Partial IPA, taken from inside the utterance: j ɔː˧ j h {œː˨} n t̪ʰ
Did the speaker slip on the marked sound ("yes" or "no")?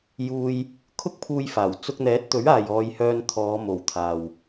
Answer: yes